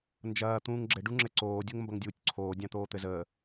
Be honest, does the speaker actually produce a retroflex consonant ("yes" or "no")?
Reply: yes